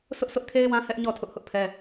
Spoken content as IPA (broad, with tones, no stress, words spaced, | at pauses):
sʰʊ˦ʔsʰʊ˦ʔkʰe˦ɪ̯wã˦ hɛ˦ʔ ɲɔ˦˨ tʰʊ˦ʔhʊ˦ʔpʰɛ˦